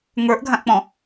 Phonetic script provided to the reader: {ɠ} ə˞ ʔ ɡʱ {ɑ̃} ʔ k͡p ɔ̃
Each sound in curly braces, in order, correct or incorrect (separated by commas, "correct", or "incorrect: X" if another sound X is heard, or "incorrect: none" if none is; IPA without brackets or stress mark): incorrect: ŋ, incorrect: ã